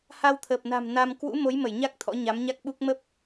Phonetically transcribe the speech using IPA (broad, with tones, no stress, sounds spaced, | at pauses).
h a˧ w t̪ʰ əː˨˩ p̚ n a̤˨˩ m n a˧ m k w ṵ˧˥ m o˨˦ j m ə˧˩ j ɲ a˦˥ k̚ t̪ʰ ɔ̰˧˥ ɲ a˨˦ m ɲ a˦˥ k̚ ɓ u˦˥ k̚ m ə˦˥ p̚